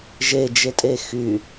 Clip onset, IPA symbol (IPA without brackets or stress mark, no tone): ʒ